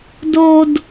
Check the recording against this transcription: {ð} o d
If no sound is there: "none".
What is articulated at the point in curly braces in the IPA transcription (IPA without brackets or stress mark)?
d